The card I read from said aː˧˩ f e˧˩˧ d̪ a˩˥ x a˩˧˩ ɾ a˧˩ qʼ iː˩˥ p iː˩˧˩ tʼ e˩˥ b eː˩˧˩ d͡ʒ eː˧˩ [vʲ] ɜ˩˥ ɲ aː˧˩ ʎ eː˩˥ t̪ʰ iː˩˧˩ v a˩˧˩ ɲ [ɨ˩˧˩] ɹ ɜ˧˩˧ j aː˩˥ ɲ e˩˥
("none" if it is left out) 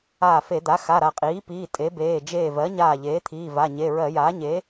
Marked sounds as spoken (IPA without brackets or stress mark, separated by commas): v, e˩˧˩